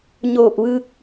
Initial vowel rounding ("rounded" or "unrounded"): rounded